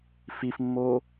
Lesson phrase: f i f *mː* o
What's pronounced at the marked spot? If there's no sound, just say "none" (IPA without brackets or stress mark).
mː